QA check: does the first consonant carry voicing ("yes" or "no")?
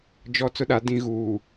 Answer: yes